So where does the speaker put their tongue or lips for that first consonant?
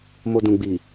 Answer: lips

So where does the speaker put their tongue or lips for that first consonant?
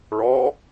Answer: retroflex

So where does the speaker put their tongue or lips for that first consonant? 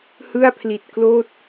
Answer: throat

